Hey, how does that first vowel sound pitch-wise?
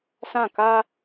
falling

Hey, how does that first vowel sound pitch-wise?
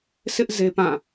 high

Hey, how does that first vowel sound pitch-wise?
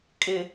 low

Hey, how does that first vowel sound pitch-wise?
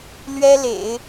high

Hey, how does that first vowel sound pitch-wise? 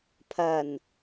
low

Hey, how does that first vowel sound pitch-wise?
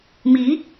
rising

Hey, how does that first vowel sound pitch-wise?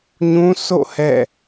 high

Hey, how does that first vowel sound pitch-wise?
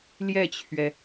falling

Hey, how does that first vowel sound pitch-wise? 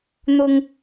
low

